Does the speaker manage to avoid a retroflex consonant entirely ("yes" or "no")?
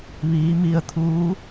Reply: yes